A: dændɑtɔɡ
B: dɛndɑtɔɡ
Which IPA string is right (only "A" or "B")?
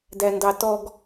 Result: A